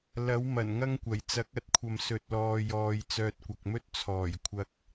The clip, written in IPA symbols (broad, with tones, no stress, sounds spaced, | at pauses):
l ɐ˨˥ w m ɐ˨˩ n ŋ ɐ˥ ŋ kʷ ɐ˨˩ j t͡s ɐ˨˥ k̚ ɐ˨˥ t̚ kʷʰ ɐ˨ m s ɵ˨ t̚ l ɔː˨ j ɔː˨ j t͡s œː˧ t̚ kʷ ɐ˨ k̚ m ɵ˥ t̚ t͡sʰ ɔː˨˩ j kʷʰ ɐ˧ k̚